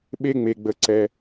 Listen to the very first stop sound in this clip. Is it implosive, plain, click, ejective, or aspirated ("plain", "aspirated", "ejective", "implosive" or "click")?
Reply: implosive